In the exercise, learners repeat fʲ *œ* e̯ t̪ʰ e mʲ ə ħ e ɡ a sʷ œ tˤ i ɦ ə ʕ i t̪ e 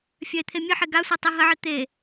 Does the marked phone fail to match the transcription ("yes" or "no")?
no